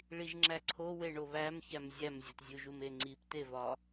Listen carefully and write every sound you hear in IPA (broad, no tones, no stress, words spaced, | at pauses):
ɭiʒŋ͡ǁæǀʰo weɳoβæmçæm zʲæmzʲotzʲuʒum eŋ͡ǀiptevɒ